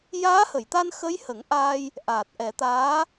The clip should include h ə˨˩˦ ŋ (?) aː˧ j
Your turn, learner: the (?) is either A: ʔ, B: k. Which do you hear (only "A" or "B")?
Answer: A